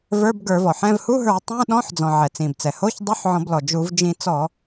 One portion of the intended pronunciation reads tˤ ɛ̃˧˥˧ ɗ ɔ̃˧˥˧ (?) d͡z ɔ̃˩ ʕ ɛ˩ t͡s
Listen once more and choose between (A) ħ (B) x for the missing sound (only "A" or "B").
A